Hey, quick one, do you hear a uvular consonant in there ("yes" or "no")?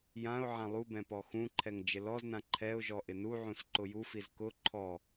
no